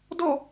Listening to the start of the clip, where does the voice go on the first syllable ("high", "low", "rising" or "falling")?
falling